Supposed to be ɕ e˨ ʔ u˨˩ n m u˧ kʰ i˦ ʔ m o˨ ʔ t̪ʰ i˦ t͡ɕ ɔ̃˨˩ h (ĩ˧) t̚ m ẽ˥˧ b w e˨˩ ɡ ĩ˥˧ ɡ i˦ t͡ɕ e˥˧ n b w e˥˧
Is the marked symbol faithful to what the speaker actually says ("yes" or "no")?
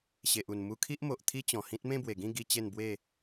no